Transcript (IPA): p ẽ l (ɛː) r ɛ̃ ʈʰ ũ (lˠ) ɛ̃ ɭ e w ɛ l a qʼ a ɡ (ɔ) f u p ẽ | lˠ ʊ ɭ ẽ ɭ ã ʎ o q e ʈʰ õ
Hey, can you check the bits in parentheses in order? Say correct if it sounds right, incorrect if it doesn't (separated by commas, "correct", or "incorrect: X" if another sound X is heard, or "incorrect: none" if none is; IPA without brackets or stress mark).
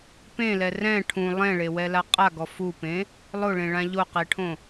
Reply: incorrect: ɛ, correct, correct